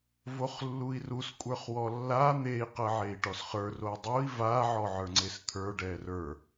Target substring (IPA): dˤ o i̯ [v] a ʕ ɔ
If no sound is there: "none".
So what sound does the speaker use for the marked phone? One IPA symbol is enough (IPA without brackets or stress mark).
v